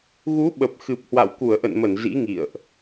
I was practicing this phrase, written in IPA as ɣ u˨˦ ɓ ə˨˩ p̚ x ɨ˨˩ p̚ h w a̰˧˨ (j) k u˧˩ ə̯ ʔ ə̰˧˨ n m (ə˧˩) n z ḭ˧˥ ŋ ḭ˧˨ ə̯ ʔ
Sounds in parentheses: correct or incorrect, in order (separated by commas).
incorrect, correct